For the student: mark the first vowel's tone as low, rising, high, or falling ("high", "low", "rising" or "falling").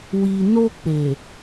low